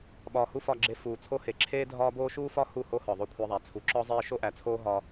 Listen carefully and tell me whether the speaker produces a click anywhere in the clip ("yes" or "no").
yes